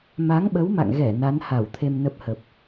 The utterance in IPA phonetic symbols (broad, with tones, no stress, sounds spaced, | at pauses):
m a˨˦ ŋ ɓ ə˨˦ w m a̰˧˨ ŋ ɣ ɛ˧˩ n a˨˦ n h a˧˩ w t̪ʰ e˧ m n ə˦˥ p̚ h ə˨˩ p̚